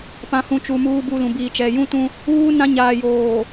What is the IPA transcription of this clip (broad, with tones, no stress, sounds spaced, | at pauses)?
p ã˨ h ũ˨ t͡ʃ u˨ m uː˦ b u˦ l ũ˨ b iː˨ t͡ʃ ɛ˨ j ũ˦ t ũ˦ | uː˦ n ã˦ ɲ aː˨ j oː˨